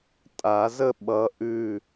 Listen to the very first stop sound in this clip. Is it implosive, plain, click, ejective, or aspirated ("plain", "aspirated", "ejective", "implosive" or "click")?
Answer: ejective